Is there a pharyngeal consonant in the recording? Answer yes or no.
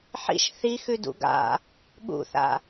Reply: yes